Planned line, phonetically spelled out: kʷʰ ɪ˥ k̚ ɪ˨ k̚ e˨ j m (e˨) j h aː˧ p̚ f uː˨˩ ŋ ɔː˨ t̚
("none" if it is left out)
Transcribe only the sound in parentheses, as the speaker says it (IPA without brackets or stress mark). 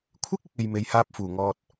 e˨